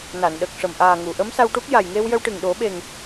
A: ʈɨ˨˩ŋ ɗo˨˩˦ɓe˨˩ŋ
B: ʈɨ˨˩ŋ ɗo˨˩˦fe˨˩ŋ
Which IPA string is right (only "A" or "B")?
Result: A